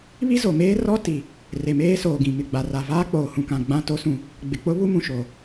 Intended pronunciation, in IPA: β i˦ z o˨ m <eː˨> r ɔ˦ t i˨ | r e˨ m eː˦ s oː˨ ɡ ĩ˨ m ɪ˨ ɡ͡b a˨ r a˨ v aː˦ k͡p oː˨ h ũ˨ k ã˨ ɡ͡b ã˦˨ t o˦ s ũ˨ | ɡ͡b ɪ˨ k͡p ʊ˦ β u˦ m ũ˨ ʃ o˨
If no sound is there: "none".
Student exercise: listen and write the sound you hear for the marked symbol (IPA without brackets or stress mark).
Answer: eː˦